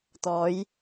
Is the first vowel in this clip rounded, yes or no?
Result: yes